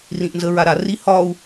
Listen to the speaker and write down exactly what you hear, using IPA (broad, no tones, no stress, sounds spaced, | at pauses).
r ĩ ʔ n z ə ɹ a ɾ a r i h ɒ u̯